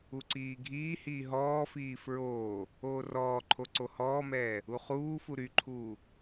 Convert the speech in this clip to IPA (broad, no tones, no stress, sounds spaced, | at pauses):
u ǀ iː ɡʱ iː h iː ɦ ɔː f iː f ɹ oː | oː r ɔː ǃʰ o ǀ o h ɔː m ɛː | u χ uː f u ɾ y ǃʰ uː